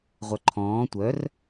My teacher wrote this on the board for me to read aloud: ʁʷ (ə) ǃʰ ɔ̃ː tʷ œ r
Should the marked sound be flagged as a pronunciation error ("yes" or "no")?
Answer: yes